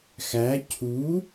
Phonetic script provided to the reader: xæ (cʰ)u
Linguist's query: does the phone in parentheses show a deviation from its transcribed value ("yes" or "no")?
no